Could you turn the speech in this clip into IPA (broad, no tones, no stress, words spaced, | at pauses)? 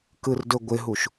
kɯrdɵɡʷɪɦuʃ